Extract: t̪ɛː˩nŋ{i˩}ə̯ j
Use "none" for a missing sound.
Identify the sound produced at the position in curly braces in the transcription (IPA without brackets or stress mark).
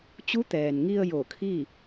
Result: i˧